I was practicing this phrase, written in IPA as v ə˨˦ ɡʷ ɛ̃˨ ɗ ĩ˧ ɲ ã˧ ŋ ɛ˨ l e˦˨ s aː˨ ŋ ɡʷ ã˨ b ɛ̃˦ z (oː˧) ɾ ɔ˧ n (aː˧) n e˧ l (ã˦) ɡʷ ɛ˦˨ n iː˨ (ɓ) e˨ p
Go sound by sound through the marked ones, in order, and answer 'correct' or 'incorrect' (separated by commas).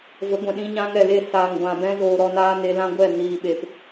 correct, incorrect, correct, correct